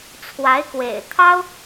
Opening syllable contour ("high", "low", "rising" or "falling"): rising